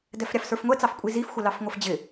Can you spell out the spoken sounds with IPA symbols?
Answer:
d ɛ f ɾʲ ɑ f s ə˞ f ŋʷ ɛ t͡s ɑ f kʷʼ i z i f xʷ ə l ɑ f ŋʷ ə f d͡ʑ ɪ

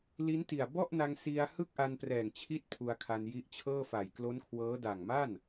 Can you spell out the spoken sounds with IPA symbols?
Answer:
l i˦˥ n t i˨˩ a̯ b ɔ˥˩ ʔ n a˧ ŋ s i˧ a̯ h ɯ˥˩ k̚ ʔ a˧ n p r ɛː˨˩ ŋ t͡ɕʰ i˦˥ t̚ pʰ u˧ a̯ kʰ a˧ n j i˦˥ ʔ t͡ɕʰ ɤː˥˩ f a˨˩ j k l o˦˥ n kʰ w ɤː˦˥ d a˨˩ ŋ m a˥˩ n

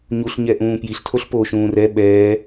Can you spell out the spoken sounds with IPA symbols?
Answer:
ɲ u ɬ ɲ ɛ ʔ ũː p j i ɬ tʰ o ɬ p o ʃ ũː r ɛ ɓ ɛː

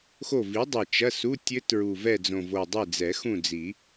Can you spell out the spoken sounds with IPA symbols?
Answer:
x o˦˨ v i˨˥ dˤ ɛ˨˩ t͡ʃ ɐ˧˥˧ s u˧˥˧ tʲ ɘ˦˥ t ɹ u˨˩ v ɛ˦˨ d͡z õ˨˩ v o˨˩ dˤ e˦˨ d͡z ɛ˨˩˦ x ũ˦˨ d͡z i˨˩˦

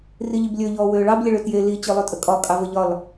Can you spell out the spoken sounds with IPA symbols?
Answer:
r i ʎ i b lʲ ø ʎ ɔː w øː ɭ ɑ b lʲ ə ɭ ø t j e l i t͡ɕ ø lˠ ø tʼ ə kʼ ɒ kʼ ɑ v ə ʎ ɒ l

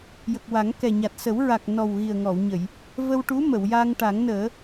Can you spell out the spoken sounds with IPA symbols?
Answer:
j ə˨˩ k̚ w a˨˩˦ ŋ k ɛ˨˩ ɲ a˨˩ t̚ s ə˨˩˦ w ɹ a˨˩ k̚ n ɔ˨˩ w ɣ i˨˩ ə̯ ŋ ɔ˨˩˨ w ɲ ə˨˩˨ j | v ə˧ w ʈ u˧˥ m ə˨˩˨ w j a˧ ŋ ʈ a˨˩˦ ŋ n əː˨˩˦

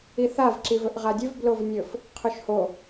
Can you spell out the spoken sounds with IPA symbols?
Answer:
i θ a v ǁ i v ɵ ʔ ʁ a dʲ ɵ v b l o v nʲ ɵ f | qʰ ɵ ʃ h o

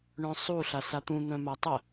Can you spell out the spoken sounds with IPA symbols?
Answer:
ɳ œ̃ sˤ u ɬ a s a t̪ ũ n̪ œ̃ m a tˤ ə

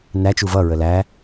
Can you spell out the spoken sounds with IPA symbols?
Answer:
n æ t͡ʃ u v ʌ ɹ ə l æ

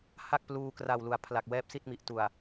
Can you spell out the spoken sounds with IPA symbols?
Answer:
h a˥˩ k̚ p l uː˧ k r a˨˩ w l u˩˦ a̯ pʰ l a˨˩ k̚ w ɛː˦˥ p̚ s i˥˩ t̚ m i˨˩ ʔ t u˨˩ a̯

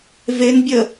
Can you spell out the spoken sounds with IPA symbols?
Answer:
v e n bʲ ə

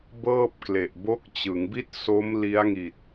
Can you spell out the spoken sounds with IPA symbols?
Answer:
b ɤː˥˩ p̚ k l e˨˩ ʔ b o˦˥ k̚ t͡ɕ ɯ˩˦ ŋ b i˥˩ t̚ s o˦˥ m l i˦˥ a̯ ŋ i˨˩ t̚

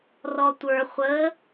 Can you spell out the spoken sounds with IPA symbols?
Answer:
r ɔ tʷ ə˞ χʷ ə

